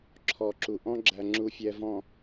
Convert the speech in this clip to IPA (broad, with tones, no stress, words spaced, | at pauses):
ǁʰɔ˨ǁu˨ʔɔ̃˦ ɡ͡ǁæ˨ŋ͡ǁu˨ fʲɛ˨vɔ̃˨